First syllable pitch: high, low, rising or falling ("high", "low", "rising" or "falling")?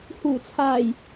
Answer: low